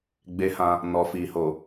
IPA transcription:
ɡ͡b e˧ h ã˧ | n ɔ˨ f i˨ h o˨

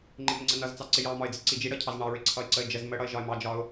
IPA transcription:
ŋ͡ǃ ɪ m ɪ ŋ͡ǀ ə n ʌ z t͡s ɑ ǀ ɪ j ɑ m ɒ ɪ̯ d͡z ɪ ǀ i d͡ʒ i ɽ ʌ cʰ ɑ z ɳ ɑ ɹ ɪ ǀʰ ʌ ɪ̯ ǀ ə ɪ̯ d͡ʒ ə z m ə ɽ ʌ ɪ̯ ʒ ɒ ɪ̯ m ɑ d͡ʒ ɒ ʊ̯

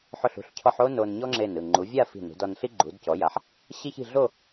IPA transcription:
ħ o˧˩ ɬ ṳ˧˩ ɬ cʰ ɔ˧ ħ o˥ n o˧ n ɲ ɔ˥ ŋ͡ǁ e˧˩ n ɯ˧˩ ŋ͡ǃ u˩˧ vʲ a˥˧ f i̤˧˩ n ṳ˩˧ d ɔ˧ n ɬ i˥ ɡ͡ǃ u˩˧ d c ɔ˩˧ j a˩˧ ħ | ɕ i˥ ç i̤˥˧ ɮ o˥˧

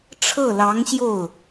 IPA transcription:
ʈ͡ʂʰ ɤ˥˩ l ɑ˧˥ ŋ ɕ j o˥˩ ʊ̯

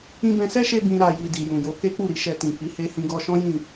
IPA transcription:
ĩ˧ b ɛ̃˧ s ɛ˦ ʃ e˧ b ĩ˧ ɾ a˧ j i˨ d i˨ j ũ˨ j o˨˦ k e˦ k͡p u˦˨ ɾ i˧ ʃ ɛ˧ t ĩ˨ f i˨˦ h e˧ h ĩ˧ ɡ ɔ˧ ʃ ɔ̃˦ j ĩ˦˨

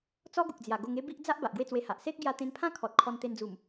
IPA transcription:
t͡s ɔ˦ ɡ u˨ k̚ d͡z j a˨˩ ɡ o˧ ŋ e˦ b i˦ ʔ d͡z a˦ ʔ b a˨ ʔ ɡ w e˥˧ t͡s w e˧ h a˨ ʔ s e˦ k̚ ɡ j a˧ t̪ ẽ˧ n pʰ ã˦ kʰ ɔ˨ t̚ kʰ ɔ˧ n t̪ e˧ n d͡z u˨˩ m

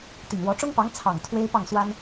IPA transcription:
t̪ i˨˩ ŋ w ɔ˧˥ ʈ͡ʂ ʊ˥ ŋ p ɑ˧˥ ŋ t͡sʰ ɑ˨˩ ŋ t̪ʰ w e˥ ɪ̯ p ɑ˥˩ ŋ s w a˥ n

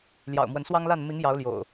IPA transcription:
l j ɑ̰˨˩ ʊ̯ m w ə˨˦ n s w ɑ˦ ŋ l a˥˨ n m i˨˦ ŋ j ɑ˨˦ ʊ̯ l j o̰˨˩ ʊ̯

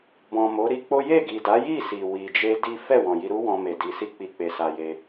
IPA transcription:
b ɔ̃˨ m o˨˦ ɾ i˧ k͡p o˦ j e˦˨ ɡ i˨ d a˨˦ j i˦˨ s i˨ w i˨ d͡ʒ e˧ d i˦ f ɛ˦˨ w ɔ̃˨ j i˧ ɾ u˦ w ɔ̃˧ m e˨ d i˨ s i˧ k͡p i˨ k͡p e˨ s a˧ j e˧

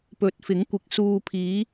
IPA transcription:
p ɵ˨˥ t̚ f ɪ˨˥ ŋ kʷ ɪ˨˥ k̚ s uː˨ pʰ iː˨˧

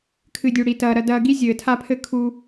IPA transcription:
kʰ ɨ˨ dʲ u˨ ɽ i˨ t ɐː˨ ɾ ɐ˨ d ɐː˨ ɡ i˦ zʲ ɘː˨ tʰ a˦ pʰ ɘ˦ kʰ u˦

